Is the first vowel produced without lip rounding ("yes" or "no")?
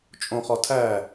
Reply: no